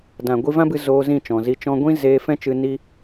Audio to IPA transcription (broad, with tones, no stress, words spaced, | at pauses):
dã˨ ɡʷi˧vã˦bɨ˧ zoː˧ zĩ˦˨t͡ʃɔ̃˨zi˧ t͡ʃɔ̃˧ɡʷĩ˦ zeː˧ fɛ̃˦t͡ʃɨ˧ ni˦